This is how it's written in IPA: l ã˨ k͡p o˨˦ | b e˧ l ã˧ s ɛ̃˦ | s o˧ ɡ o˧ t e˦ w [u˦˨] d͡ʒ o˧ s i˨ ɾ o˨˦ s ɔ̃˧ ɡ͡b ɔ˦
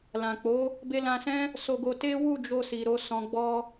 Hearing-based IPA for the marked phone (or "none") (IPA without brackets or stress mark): u˦˨